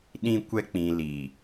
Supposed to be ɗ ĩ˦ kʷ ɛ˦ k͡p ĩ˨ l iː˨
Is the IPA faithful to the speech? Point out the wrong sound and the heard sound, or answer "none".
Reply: none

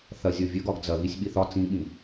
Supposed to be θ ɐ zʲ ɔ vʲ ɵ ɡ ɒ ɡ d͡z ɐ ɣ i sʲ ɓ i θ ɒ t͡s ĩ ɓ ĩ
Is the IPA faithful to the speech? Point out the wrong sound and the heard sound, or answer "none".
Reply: none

